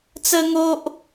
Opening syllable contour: high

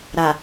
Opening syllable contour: low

